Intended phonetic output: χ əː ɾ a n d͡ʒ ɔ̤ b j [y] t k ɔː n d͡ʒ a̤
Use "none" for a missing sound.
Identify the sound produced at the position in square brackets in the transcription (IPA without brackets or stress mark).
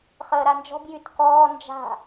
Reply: y